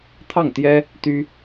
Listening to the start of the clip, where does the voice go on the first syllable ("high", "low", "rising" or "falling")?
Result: falling